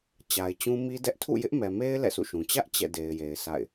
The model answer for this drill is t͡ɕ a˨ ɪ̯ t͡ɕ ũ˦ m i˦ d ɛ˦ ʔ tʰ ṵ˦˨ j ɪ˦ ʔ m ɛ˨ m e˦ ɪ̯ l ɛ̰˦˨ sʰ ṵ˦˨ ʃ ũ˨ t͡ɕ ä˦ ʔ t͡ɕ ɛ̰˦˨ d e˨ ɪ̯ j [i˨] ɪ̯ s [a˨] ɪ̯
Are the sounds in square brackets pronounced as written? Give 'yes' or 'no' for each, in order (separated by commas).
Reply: no, no